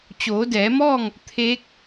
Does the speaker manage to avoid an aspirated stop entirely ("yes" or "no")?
no